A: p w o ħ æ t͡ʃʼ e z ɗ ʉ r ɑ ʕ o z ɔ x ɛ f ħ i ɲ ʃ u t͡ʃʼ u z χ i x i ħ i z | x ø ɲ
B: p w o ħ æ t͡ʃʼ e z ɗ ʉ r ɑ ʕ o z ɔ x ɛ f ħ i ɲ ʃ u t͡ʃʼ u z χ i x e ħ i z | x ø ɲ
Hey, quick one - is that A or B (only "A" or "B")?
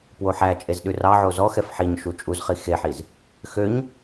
B